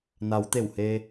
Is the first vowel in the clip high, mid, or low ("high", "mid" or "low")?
low